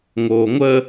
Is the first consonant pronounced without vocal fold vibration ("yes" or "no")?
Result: no